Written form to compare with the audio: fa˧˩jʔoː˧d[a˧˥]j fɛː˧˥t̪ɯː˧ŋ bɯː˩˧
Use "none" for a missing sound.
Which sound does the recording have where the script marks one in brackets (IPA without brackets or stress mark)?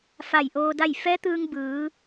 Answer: a˥˨